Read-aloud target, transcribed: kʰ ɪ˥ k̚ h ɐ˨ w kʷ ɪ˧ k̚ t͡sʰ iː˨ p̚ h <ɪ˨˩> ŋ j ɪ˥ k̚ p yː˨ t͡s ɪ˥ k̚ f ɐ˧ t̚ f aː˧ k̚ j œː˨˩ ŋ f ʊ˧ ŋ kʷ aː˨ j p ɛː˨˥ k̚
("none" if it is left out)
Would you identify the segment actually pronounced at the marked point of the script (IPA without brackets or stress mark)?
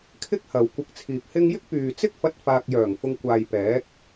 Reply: ɪ˥